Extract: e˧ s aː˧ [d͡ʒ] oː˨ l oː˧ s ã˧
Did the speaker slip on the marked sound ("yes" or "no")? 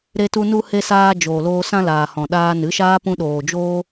no